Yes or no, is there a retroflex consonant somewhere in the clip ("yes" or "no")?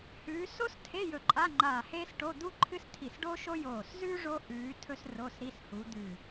yes